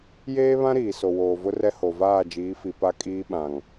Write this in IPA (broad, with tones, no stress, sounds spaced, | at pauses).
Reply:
j eː˦ β ã˦ ɾ iː˨ s o˨ w oː˨ v ʊ˦ r ɛ˦ h o˨ v aː˦˨ d͡ʒ iː˨˦ f i˨ p a˦ kʼ iː˦ ɓ ã˨ ŋ